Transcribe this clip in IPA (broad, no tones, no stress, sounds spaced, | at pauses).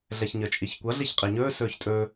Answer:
ɮ ɛ ç ɲ ə t͡ʃʼ i ç kʷ ʌ ɮ i ç qʼ i ɲ ɵː s ɵː ç tʼ ɵː